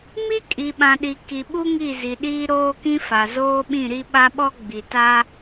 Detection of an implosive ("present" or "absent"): present